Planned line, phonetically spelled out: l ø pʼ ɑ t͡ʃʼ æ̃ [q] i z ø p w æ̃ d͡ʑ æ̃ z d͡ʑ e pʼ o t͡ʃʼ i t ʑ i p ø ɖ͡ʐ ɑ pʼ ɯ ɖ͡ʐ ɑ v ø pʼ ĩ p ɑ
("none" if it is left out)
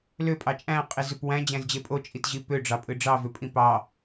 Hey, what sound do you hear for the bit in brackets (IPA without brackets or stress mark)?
qʼ